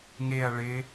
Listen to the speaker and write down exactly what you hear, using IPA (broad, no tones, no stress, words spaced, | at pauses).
ŋeɐ̯ ɭɪ